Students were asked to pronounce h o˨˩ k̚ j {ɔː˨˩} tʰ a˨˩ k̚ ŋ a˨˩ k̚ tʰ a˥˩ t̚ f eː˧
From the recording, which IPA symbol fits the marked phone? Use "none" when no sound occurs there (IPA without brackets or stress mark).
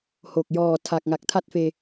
ɔː˨˩